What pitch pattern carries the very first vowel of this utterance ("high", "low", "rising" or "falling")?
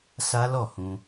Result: high